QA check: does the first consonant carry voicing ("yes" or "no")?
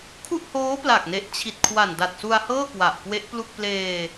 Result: no